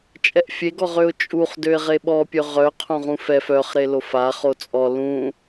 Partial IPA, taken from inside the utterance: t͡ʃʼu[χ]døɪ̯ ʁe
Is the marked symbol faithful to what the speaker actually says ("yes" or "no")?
yes